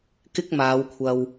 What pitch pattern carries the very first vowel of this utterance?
high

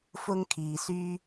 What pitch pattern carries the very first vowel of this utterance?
high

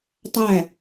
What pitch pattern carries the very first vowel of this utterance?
falling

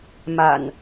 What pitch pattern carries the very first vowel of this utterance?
low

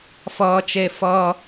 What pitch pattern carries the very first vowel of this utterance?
high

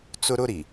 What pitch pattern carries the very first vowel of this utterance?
high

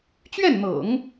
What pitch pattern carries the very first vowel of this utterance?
falling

